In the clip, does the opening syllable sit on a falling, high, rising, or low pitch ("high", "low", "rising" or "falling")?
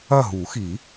falling